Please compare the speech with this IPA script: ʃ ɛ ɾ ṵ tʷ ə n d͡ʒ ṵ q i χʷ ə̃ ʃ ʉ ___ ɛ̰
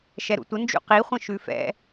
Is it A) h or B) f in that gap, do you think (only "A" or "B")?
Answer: B